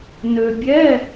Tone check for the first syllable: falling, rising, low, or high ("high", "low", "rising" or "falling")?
low